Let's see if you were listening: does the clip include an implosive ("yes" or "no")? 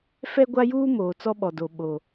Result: yes